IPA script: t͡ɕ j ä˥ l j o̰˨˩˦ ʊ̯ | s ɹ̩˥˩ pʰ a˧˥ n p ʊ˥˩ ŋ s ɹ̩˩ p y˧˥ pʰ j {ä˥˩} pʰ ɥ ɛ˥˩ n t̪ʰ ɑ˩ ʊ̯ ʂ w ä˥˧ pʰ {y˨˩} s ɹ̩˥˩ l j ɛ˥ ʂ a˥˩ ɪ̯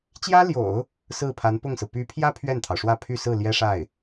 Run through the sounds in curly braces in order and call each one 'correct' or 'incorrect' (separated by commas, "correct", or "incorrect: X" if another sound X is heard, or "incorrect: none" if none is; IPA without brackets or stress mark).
incorrect: ä˥, incorrect: y˥˧